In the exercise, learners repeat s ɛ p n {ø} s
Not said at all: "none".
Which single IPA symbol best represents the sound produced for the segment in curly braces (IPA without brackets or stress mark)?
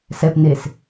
e